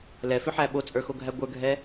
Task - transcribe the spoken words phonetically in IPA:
l ɛ f ʏ ħ æ ɓ o t͡sʼ ə˞ x o ɡʱ æ ɡʷ ə˞ ɡʱ ɛ

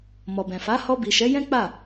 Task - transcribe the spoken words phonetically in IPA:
m ɔ˨ b ɛ̃˨ f a˨˦ h ɔ˧ b i˨ ʃ ɛ˨˦ j ɛ̃˦ k͡p a˦˨

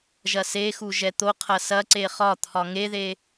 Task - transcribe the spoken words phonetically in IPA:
ʒ ɐ s e x u ʒ ɛ t̪ o qʰ ɐ s ɐ ǀ e χ ɒ t̪ʰ ɒ ŋ e ð e

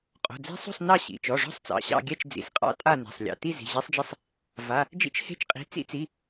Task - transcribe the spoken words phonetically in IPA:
qʼ o̤˩˧˩ d͡z e̤˦˥ sˤ o̤˥˧ sˤ n ɑ˥˧ ɕ ḭ˩˧˩ t͡ʃ ɔ˩˧˩ ʐ ɔ̤˥˧ sˤ t͡s ɑ̰˩˧˩ ɕ ɑ̰˥˧ ɡʲ ɛ˥˧ t͡ʃ d͡z ḭ˩˧˩ s qʼ ɑ̰˦˥ tʼ a˥˧ n e̤˩˧˩ sˤ lʲ ɑ̰˩˧˩ t i˥˧ z i̤˩˧˩ ʑ e˦˥ sˤ d͡ʒ i˦˥ sˤ | v a˩˧˩ | d͡ʒ ḭ˦˥ t͡ʃ h e̤˦˥ t͡ʃ qʼ i̤˩˧˩ t͡s ḭ˦˥ t͡s i˩˧˩

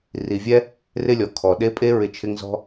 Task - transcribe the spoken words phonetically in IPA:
r i˨ vʲ ɛ˦ | r ɪ˦ lʲ ɔ˨ kʰ ɔ˨ ɗ e˦ pʼ e˦ ɹ ɪ˦ t͡ʃʰ ɪ˦ ŋ z ɔ̤˦

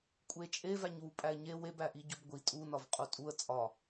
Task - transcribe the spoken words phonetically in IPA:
kʷʼ e t͡ʃʼ e v æ ɲ w u pʼ æ ɪ̯ ɲ e w e b æ ʔ i ɟ o b ɡʷ i tʼ u n ɒ v qʼ u tʼ u ə̯ t͡sʼ ɒ

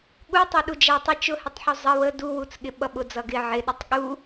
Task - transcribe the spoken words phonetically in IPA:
ɠ u tˤ u ɗ u d͡ʒ æ tˤ ɪ t͡ʃ ʊ h ɪ tˤ ħ u zˤ ə w ə d u w u t͡s ɠ ɪ ɓ ʌ ɓ ʊ d͡z ʌ ɡ ɪ ʕ ɪ ɗ ʌ tˤ ɠ u

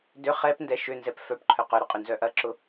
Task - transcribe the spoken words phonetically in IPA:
d ʏ χ ɛ p n d ɛ ʃ ʏ n z ɛ p f œ p ǃʰ œ q œ ɾ ʊ qʼ ʏ n z œ ʔ ɐ ǁ ʊ

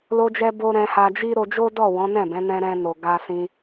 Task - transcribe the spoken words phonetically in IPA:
l o˧ d͡ʒ ɛ˧ b o˧ ɾ ɛ̃˧ h a˧ d͡ʒ i˦ ɾ o˧ d͡ʒ o˦ d ɔ˦˨ w ɔ̃˨˦ n ɛ̃˦˨ b ɛ̃˨˦ n ɛ̃˧ ɾ ɛ̃˧ n o˨ ɡ a˧ s ĩ˧

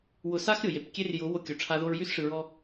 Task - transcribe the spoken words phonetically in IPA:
w ʊ˨ s a˧ x ɾʲ ʊ˨ j e˨ p kʲ e˦ r j ʊ˨˦ w o˧ kʲ o˨ ʈ͡ʂʰ a˦ ð o˧ ɹ j y˦ s ʂ ɯ˨ ɹ ɔ˧

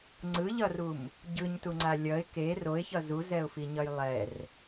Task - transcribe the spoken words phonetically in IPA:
ŋ͡ǀ ɯ ʎ ʌ r u m | ɟ ɯ ɲ t u ŋ͡ǀ a lʲ ʌ ɪ̯ k e r o ɪ̯ ç ʌ z u z ɛ ʊ̯ f i ɲ ʌ j lˠ ɛ r

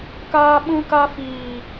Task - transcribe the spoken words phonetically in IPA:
k aː˧ ɓ ũ˧ k a˧ f iː˨

